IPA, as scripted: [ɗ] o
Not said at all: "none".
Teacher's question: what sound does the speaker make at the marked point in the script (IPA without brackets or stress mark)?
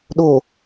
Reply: ɗ